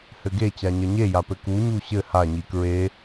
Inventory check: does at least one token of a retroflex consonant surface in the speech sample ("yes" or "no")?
no